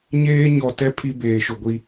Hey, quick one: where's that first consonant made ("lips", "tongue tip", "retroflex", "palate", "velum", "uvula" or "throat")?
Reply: palate